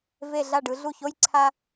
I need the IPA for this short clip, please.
ve˧˩ ɮa˧˩ɖɯ˩˧ ɮu˧˩ço˥˧j ǀʰa˧

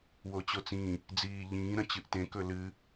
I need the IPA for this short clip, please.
wot͡ɕot͡sĩ | d͡ziːʎĩː ɾɐ̃t͡ɕɨʔtẽ kɵlɨ

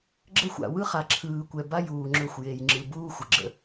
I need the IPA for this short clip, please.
ɡ͡ǁə˦xʷa̰˨ wɯ˦χa˨ǁʰɯː˨kʷɛ˨ ba˦juː˨ŋ͡ǁɵ˦˨xʷ je˨jŋ͡ǁɯ˨buː˦ xʷə˨ɡ͡ǁə̰˦

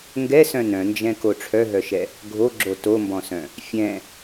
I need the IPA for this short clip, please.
ŋɡɛsœ̃ nœ̃nd͡ʒɛ̃ko ʈ͡ʂʰœɦœʃɛ | ɡʱoɡ͡ǁo tombɔ̃sœ̃ | fʲɛ̃

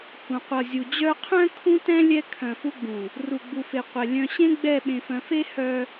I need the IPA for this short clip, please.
hũ˨qʷʌ˨zʲu˨ d͡ʑœ˦ qʰœ̃˦ kʰũ˦tɛ̃˦ lʲɛ˦kʰœ̃˨fu˦ɡ͡bũ˨ | ru˨ɡ͡bu˨fe˨ qʷɛ˨ lʲœ̃˨ɕẽ˦ ɡ͡bɛ˦˨ɓẽ˨fœ̃˨ fe˦ hœ˦

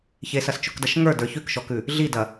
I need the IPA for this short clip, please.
çesɐst͡ʃʊkdɐʃ ŋə˞də˞ çʉkʃɔkʉ | ɮidɐ

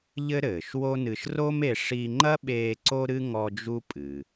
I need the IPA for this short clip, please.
ʎɘ˥ɾɘː˩ʃwo˥nɨ˧ʃ ro˥me˧ ʂi˧ŋ͡ǃɐ˥ɓeː˧ ǀo˥ɾɨ˥ ŋɔ˥ d͡ʒu˥pʼɨ˩

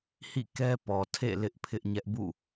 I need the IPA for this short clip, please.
hḭ˦˨kɛ˦ pɔ˨tʰḛ˦˨ lɪ˦ʔpʰɪ˦ʔɲɛ˦ʔ bṵ˦˨

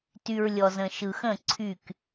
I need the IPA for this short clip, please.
ty˨ɹlʲɔ˨zə̃˨ ʃɯ˨xə̃˦˨ ǀʰy˦˨k

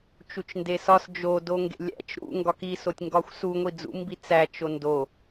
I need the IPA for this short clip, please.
t͡ʃut͡ʃndesɒs d͡ʒo doŋɡḛlʲæ̰t͡ʃ ɾṵ ŋɡɒki sotʲŋɡɒxʷsu ŋʷid͡zṵmbi t͡sæ t͡ʃondo

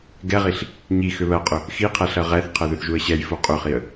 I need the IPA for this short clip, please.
ɡɛʁiɬ | ɲi xʏβɜqʼʏ | xi qʰɛɬɜʁɛθqʰɜ ðʏθʒuə̯ɕɛjfu qʼʏχiə̯

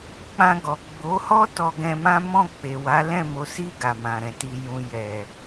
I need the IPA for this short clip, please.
k͡pã˧ ɡɔ˨ɡ͡bo˨˦ hɔ˦ tɔ˧ɡɛ̃˧mã˦ mɔ̃˦˨k͡pe˨wa˨˦ lɛ̃˦˨mo˨˦si˦˨ ɡa˨mã˨ɾɛ̃˨ti˧ jũ˨ jɛ˨

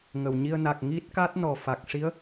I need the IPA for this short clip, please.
ŋə˨˩˨wɲi˧ə̯ na˨˩k̚ ŋi˦˥t̚ka˦˥t̚ nɔ˨˩fa˨˩k̚ ʂi˧˥ə̯

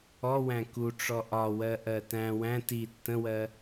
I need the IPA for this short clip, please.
ɔwæ̃ kuʈ͡ʂɔ ʔɒwɜʔɜ tæ̃ wæ̃ ti tːə̃wɜ

